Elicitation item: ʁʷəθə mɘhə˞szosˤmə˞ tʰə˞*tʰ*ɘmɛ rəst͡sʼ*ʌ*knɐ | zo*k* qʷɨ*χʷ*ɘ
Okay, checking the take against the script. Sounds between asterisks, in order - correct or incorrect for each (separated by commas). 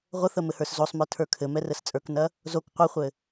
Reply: incorrect, incorrect, correct, correct